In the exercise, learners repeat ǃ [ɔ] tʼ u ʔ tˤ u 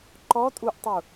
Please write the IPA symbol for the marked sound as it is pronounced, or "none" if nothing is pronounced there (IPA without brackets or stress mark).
ɔ